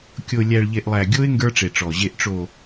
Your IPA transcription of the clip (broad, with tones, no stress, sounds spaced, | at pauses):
kʲ o˨ lʲ æ˨ ɭ ʎ e˨ ʔ lˠ æ˨ ɡʲ o˦ ɪ̯ ŋ ɡ ə˞˦ ʈ͡ʂ e˨ ʈ͡ʂ ɔ˨ ʑ e˨ ʔ ʈ͡ʂ o˨